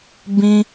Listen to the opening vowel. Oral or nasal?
nasal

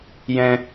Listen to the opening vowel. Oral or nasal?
nasal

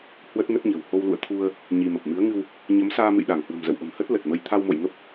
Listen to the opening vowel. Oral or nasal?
oral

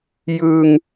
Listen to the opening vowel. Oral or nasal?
oral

